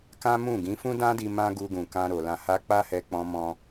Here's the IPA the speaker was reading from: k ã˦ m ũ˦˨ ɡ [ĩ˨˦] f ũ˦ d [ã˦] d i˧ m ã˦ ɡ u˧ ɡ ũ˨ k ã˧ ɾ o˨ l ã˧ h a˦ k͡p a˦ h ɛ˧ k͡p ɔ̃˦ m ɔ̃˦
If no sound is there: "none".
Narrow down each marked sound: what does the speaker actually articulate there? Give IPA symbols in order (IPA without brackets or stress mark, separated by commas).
ĩ˨˦, ã˦